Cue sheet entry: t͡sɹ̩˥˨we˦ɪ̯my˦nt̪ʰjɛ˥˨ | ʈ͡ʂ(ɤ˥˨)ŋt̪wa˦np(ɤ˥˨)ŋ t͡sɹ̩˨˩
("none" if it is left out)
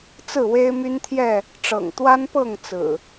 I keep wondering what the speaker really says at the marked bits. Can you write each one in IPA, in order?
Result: ɤ̰˨˩, ɤ˥˨

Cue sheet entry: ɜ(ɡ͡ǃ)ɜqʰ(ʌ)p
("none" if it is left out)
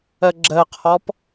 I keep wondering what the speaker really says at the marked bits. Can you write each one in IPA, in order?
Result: ɡ͡ǁ, ɔ

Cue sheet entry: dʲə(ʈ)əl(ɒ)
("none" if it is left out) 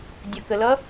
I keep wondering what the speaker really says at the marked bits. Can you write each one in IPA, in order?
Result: k, ʌ

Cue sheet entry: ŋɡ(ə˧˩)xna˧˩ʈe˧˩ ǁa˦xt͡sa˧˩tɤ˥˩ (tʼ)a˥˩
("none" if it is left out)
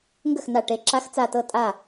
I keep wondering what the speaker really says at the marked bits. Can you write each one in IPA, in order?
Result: ə˥˩, tʼ

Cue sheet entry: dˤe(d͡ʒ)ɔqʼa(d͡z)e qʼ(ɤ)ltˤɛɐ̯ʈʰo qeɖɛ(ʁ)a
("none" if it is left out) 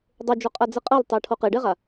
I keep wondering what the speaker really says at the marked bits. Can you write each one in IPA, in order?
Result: d͡ʒ, d͡z, ɤ, ʁ

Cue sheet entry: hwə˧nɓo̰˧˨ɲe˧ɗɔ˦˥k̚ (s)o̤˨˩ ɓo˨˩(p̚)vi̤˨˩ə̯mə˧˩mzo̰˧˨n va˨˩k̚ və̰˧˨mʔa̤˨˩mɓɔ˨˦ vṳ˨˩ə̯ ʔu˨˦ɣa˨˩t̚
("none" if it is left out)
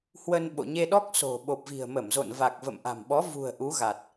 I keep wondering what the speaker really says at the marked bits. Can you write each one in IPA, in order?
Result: s, p̚

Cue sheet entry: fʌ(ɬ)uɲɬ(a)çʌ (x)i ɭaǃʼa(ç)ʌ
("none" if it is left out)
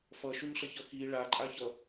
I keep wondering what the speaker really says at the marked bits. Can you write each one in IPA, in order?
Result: ʃ, ʌ, x, ç

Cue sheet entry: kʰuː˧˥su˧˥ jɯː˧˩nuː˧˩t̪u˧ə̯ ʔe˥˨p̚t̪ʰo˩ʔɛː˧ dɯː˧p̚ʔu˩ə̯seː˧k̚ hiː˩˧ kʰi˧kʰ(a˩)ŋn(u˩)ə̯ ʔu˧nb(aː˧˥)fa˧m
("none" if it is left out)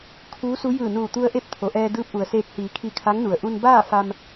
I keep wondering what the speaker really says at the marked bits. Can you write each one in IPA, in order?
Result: a˧˥, u˩, aː˥˨

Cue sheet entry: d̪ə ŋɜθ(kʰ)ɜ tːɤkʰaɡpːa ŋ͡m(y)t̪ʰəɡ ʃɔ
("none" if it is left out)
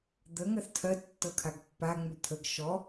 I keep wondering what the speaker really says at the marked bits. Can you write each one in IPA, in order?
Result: tʰ, y

